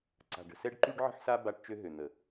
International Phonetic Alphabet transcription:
ǀ a̤˨ ɖ ə̤˨ s ɛ˦ ɖ ǃ y˦ ɖ ʕ ə̤˦ ħ s a˦ b a˦ ʈ t͡ʃ ø˦ ɦ ø˨ n̪ ə˨

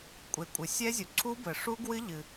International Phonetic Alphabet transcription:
kʷʼ e˨ kʷʼ ɨ˨ sʲ ɛ˦˥ zʲ u˨ ǀʰ u˦˥ b ɘ˨ ʂ u˦˥ ɡ w ɨ˦˥ ʎ ɨ˨

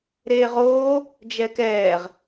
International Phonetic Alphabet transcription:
ɾ eː ʁ oː | d͡ʒ ɛ k ɛː ʁ

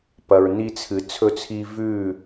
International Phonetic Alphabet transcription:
p ɐ˨ ɹ n i˧ t͡sʰ ɨ˨ t͡sʰ ɵ˦ t͡sʰ i˦ v ʉ˦˨

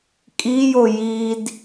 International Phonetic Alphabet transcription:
kʼ i j o j i d

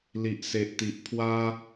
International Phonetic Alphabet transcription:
l i˨ ʔ s e˨ ʔ t̪ i˨ ʔ pʰ w a˦

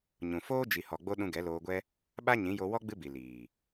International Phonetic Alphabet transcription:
ɲ ũ˨ f oː˦ d͡ʒ i˨ h ɔ˨ ɡ͡b o˧ ɗ ũ˧ ɡ ɛ˨˦ l oː˧ ɡʷ ɛ˦ | ɓ a˦ ɲ ĩ˨˦ j o˧ w ɔ˦ ɡ͡b ɨ˦ b i˨ l iː˨

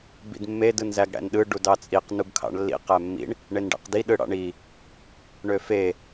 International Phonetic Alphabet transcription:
b ḭ d mː e d ɯ n z æ ɡ ɽ æ̰ n ɗ ɯ ɖ u d ɑ t͡sʼ i q n u ɡ kʰ ɑ̰ ɳ lː ḭ q æ mː ḭ ɳ | ɳ e n ɖ æ̰ q d i ɗ ɯ ɽ ɑ̰ ɳ i | ɳ ø f e

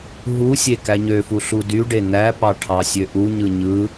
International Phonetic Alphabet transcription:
ɦ u sʲ e k æ ɲ ø f u ɬ u d y ɖ e n æ p ɑ ʈʰ ɑ sʲ ø ʔ u ɲ ɯ ɲ ɯ

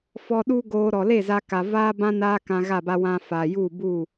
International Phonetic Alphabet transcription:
f ɔ˧ ɗ u˦ ɡ oː˧ ɾ ɔ˨ l e˦˨ z a˧ k a˨ v aː˦ b ã˦ n aː˦ k ã˧ ɣ a˦˨ b a˧ w ã˧ f a˨ j u˦˨ b u˦˨

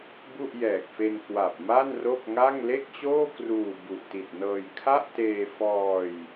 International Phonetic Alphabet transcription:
b u˥˩ ʔ j ɛː˨˩ k̚ f e˧ n k w a˨˩ p̚ m a˥˩ n r o˥˩ k̚ ŋ a˥˩ ŋ l e˥˩ k̚ t͡ɕ oː˥˩ k r uː˨˩ b u˨˩ ʔ t i˨˩ t̚ n ɤː˧ j kʰ a˥˩ ʔ t eː˧ f ɔː˧ j

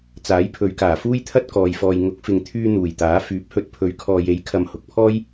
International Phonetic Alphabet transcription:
t͡s aː˨˥ j pʰ ɵ˨˧ ɥ k aː˨˩ f uː˥ j t̪ʰ ɐ˥ t̚ k ɔː˨ j f ɔː˨ j ŋ ʊ˨˥ k̚ f ɪ˨ ŋ t̪ʰ yː˧ n̪ uː˨˩ j t̪ aː˨˥ f yː˨˥ p̚ h ɵ˧ t̚ pʰ ɵ˨˥ ɥ kʰ ɔː˨ j e˨˥ j kʰ ɐ˨ m h ʊ˨˥ k̚ pʰ ɔː˥ j

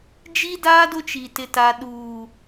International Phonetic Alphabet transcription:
d͡ʒ i˦ d aː˦ d ʊ˦ t͡ʃ i˨ t ɪ˨ t a˨ ɗ uː˨

